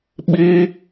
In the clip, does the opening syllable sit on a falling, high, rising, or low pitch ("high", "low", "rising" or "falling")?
high